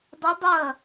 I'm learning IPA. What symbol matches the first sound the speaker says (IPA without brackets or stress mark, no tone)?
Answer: dˤ